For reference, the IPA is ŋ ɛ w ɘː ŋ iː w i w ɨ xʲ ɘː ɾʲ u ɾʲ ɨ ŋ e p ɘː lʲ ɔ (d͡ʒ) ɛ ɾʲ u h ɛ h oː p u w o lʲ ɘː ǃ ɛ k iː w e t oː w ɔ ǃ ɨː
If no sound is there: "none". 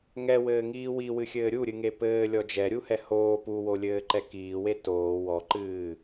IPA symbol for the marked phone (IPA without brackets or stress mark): d͡ʒ